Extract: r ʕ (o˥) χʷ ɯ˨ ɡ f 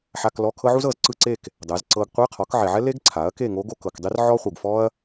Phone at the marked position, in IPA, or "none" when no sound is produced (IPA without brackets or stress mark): ɔ˥